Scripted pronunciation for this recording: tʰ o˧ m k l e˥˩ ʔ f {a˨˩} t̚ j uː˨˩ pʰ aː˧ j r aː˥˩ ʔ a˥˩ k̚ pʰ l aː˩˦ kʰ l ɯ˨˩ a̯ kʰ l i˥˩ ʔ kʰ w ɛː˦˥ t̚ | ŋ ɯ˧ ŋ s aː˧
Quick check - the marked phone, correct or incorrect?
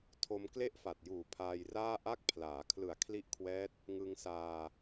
correct